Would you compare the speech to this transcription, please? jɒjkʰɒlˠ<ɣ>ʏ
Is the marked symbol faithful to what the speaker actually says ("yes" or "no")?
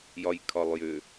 no